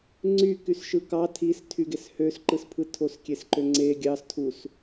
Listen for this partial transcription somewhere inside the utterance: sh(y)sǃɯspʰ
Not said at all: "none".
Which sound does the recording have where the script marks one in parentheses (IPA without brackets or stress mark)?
ø